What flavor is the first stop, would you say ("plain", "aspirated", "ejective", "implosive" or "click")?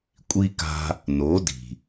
ejective